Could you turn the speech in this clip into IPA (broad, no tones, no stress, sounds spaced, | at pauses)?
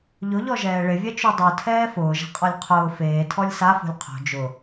ʎ ʊ ʎ ɔ ʒ ɛː ɭ ɪ vʲ ɛ t͡ʃ u dˤ u tʰ ɛː f ʊː ʒ ɛ̤ qʼ ɔ lʲ qʰ ʊː f eː tʰ ɔ lʲ s a f o̤ lʲ qʰ o̤ d͡ʒ ʊ